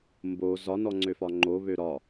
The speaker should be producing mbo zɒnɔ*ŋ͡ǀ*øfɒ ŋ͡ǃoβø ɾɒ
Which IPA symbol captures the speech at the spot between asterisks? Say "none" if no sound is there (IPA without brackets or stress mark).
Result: ŋ͡ǀ